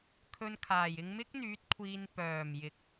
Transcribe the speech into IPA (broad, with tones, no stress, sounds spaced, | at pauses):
kʰ ɵ˧ n kʰ aː˨˩ j ɪ˧ ŋ m ɪ˥ k̚ n̪ yː˨˥ t̚ kʷʰ iː˧ n p œː˨˩ m j ɪ˨˥ k̚